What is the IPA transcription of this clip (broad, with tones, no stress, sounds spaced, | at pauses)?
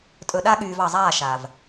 tʼ ɵ˨ ɗ a˦ ɠ yː˨ v ɑ˨ zˤ aː˦˨ ʃ a˨ v